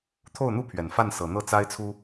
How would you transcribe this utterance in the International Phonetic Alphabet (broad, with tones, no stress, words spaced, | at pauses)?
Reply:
t̪ʰo˥˩ʊ̯n̪u˥pʰɥɛ˨˩n fa˥˩nsɤ˨˩n̪ɤ˥˩ t͡sa˥ɪ̯t͡sʰu˥